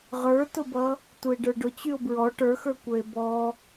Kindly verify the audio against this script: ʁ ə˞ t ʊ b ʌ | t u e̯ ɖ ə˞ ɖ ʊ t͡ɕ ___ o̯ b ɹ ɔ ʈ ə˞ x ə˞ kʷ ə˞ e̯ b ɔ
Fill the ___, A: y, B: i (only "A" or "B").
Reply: A